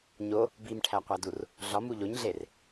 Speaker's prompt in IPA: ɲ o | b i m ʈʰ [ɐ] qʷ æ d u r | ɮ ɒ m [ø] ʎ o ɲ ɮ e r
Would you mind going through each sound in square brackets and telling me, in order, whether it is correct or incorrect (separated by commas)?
incorrect, incorrect